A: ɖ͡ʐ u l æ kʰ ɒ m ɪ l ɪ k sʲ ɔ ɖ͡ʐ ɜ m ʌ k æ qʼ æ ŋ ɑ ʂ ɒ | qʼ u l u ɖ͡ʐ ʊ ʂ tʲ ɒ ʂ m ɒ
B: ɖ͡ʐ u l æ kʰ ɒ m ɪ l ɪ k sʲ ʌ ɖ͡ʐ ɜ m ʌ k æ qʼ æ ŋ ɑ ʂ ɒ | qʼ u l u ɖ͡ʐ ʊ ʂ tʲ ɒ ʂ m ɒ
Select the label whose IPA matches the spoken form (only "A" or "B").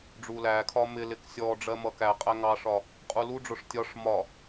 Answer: A